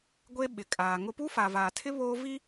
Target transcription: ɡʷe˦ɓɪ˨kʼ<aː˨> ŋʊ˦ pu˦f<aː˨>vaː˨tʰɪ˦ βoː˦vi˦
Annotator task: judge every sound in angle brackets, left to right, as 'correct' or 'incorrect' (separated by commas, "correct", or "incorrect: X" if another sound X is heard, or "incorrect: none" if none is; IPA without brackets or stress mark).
correct, correct